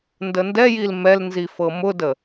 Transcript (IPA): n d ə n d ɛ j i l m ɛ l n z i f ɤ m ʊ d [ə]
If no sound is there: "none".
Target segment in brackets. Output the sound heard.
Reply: ə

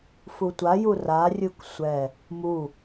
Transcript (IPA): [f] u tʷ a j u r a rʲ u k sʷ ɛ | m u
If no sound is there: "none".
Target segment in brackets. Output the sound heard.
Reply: f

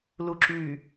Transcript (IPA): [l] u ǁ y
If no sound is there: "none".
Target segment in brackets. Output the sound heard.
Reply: l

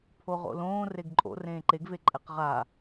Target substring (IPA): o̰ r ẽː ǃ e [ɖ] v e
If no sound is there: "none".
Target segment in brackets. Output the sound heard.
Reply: ɡ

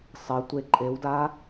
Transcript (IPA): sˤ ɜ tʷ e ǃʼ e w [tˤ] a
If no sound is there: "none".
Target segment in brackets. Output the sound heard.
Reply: d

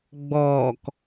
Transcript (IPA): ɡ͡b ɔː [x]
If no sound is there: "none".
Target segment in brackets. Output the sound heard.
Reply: k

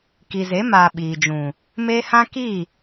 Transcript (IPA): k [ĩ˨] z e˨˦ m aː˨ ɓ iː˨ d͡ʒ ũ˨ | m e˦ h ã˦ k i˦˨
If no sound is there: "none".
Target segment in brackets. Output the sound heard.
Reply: i˨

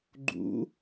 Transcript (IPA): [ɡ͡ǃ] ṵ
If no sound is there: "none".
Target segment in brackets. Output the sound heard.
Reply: ɡ͡ǃ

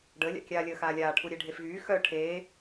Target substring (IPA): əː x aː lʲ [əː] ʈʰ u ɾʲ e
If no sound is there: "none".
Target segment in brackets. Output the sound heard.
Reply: aː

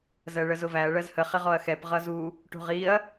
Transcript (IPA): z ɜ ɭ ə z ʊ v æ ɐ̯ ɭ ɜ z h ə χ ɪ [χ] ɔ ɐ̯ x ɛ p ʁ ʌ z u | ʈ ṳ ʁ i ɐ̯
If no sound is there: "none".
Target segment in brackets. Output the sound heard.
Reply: ʁ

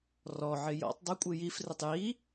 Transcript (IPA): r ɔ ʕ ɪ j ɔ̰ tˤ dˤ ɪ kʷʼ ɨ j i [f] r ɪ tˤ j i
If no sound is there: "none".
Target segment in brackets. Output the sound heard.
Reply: f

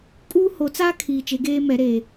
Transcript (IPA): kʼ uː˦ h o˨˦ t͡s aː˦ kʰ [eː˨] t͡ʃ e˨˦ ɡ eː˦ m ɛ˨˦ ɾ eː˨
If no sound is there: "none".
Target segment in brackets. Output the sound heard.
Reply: iː˨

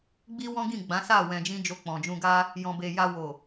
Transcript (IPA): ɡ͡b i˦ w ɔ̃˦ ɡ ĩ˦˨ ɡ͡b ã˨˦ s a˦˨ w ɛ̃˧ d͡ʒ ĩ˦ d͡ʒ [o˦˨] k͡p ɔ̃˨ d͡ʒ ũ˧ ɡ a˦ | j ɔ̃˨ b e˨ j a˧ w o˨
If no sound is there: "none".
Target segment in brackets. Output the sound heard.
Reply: o˧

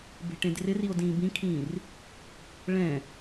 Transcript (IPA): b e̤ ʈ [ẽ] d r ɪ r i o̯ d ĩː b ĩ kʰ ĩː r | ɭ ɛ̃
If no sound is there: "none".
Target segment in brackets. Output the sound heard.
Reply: ẽ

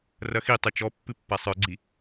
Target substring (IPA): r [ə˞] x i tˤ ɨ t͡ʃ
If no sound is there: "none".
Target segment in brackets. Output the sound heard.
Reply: ɐ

